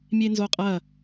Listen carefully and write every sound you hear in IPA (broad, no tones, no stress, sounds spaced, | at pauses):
mʲ e n z o qʼ ɐ